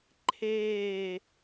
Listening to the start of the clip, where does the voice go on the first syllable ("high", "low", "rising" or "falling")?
falling